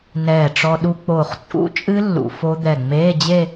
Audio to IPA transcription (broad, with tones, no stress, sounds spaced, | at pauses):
n ɛː˧˩ ʈ͡ʂ ɔ˧ ɗ u˧ k͡p oː˧˩ χ t͡sʼ ṵ˦˥ t͡ʃʼ ɨ˦˥ lː ṵ˧ f o˦˥ d̪ ɛ˧˩ ŋ͡m eː˧˥˧ d͡ʑ e˥˧